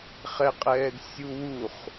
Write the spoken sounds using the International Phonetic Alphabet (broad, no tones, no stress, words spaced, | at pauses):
χɛqʼɛːd sʲuwuχ